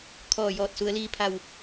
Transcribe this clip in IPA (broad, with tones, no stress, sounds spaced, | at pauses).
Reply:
kʰ ɔː˧˩ j ɔː˧˩ t̚ s u˩˧ ə̯ l iː˧ pʰ a˧˩ w